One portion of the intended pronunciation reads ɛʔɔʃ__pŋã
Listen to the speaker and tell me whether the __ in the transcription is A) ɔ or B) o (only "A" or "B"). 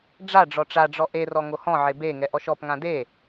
A